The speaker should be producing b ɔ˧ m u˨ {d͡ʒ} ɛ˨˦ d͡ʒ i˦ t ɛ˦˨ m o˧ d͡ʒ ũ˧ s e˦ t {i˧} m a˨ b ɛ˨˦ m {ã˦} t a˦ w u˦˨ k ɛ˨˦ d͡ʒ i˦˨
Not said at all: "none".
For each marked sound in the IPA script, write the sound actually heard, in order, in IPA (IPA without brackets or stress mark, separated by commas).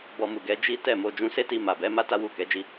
ɡ, i˧, a˦